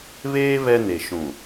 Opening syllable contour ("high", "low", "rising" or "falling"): high